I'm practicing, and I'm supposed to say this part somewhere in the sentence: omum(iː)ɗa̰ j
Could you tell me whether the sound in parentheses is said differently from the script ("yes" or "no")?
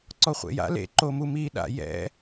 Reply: no